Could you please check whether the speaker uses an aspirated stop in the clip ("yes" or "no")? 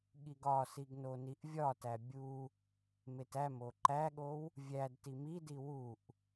no